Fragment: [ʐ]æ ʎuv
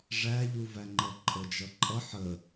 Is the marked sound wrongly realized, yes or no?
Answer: no